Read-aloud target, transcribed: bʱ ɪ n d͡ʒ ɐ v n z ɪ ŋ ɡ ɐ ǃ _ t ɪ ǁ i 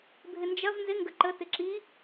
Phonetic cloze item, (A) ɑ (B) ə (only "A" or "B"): B